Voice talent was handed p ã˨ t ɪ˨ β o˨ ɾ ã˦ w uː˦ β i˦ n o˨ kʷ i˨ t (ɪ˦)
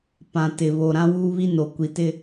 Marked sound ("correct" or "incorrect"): correct